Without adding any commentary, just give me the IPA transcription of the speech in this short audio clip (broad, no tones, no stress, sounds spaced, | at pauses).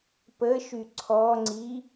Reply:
p ə ʃ y ǀʰ ɔ ŋ͡ǀ i